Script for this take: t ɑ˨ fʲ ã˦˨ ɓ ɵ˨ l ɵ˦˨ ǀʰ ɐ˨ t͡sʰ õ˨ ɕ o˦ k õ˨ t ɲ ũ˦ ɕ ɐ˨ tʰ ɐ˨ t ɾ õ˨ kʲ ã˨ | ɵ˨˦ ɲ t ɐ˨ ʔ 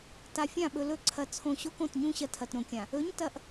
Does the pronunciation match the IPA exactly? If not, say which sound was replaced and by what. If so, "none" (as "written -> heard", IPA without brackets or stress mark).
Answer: ɑ˨ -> a˨